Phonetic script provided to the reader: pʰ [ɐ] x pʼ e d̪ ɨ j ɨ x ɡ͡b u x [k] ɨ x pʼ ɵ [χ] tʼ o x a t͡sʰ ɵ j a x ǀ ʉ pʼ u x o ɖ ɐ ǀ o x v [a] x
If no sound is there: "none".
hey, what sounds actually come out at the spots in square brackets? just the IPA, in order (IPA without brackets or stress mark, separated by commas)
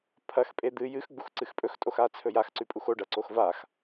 ɐ, ǀ, x, a